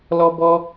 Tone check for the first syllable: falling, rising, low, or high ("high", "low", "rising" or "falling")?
high